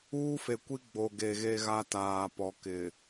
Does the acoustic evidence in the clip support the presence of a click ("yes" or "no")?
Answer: no